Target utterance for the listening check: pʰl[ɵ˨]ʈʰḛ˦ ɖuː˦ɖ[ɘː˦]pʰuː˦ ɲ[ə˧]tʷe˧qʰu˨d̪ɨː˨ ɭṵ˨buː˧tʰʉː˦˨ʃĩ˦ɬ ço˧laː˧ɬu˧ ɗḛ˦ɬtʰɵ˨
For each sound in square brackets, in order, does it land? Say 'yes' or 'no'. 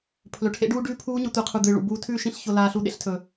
yes, no, no

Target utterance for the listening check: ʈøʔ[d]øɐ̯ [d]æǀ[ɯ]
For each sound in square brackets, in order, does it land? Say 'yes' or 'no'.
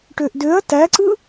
yes, no, yes

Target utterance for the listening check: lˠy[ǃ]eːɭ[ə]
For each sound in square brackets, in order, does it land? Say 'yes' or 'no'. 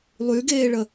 no, yes

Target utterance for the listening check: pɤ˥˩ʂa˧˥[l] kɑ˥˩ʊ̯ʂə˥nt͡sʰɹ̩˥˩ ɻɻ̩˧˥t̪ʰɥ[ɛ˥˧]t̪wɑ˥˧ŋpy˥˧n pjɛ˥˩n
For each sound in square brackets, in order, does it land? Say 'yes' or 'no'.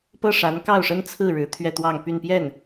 no, yes

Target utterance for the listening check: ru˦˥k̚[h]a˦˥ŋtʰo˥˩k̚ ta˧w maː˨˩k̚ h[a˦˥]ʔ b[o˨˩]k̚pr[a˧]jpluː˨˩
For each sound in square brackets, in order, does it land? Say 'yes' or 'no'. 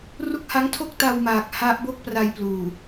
yes, yes, no, yes

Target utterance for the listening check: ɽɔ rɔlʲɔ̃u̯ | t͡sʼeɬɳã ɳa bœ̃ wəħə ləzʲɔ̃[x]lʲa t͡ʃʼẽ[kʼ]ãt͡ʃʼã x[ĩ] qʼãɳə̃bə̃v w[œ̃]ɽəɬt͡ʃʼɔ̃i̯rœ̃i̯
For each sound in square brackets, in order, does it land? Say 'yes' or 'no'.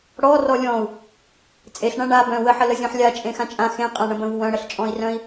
no, no, no, yes

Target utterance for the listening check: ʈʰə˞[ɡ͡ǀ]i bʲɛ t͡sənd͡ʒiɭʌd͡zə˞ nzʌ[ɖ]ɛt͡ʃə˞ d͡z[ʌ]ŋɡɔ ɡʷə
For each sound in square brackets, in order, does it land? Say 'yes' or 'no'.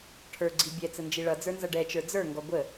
yes, yes, no

